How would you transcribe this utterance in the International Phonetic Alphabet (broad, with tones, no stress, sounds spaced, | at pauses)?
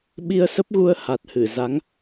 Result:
ɓ i˧ ə̯ s ə˦˥ p̚ ɣ u˧ ə̯ h a˨˩ t̚ h ɨ˧˩ z a˨˦ ŋ